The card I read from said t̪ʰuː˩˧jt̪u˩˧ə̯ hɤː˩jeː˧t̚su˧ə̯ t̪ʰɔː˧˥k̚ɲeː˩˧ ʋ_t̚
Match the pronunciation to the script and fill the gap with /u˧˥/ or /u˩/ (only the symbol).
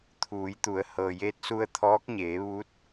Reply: u˧˥